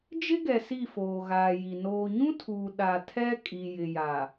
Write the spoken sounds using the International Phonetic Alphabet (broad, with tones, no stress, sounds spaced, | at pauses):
d͡ʒ ɪ˦ ɡ ɛ˨ s i˦˨ f oː˨ ɣ aː˨ j i˨ n oː˨ ɲ ũ˦ tʰ uː˨ ɗ a˨ tʰ ɛ˦ kʼ i˨ j ɪ˨ j a˨